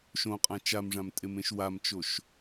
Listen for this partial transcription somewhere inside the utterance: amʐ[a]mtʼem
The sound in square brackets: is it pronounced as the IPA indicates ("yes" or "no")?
no